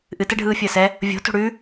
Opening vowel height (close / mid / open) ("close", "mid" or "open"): close